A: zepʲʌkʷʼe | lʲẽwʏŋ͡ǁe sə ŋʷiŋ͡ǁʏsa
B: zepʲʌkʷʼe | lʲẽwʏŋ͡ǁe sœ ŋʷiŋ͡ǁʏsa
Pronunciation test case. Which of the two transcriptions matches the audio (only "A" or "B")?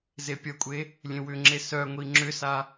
B